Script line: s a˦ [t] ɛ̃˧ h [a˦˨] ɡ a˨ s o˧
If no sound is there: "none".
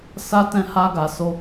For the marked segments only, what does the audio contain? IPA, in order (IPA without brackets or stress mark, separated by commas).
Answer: t, a˧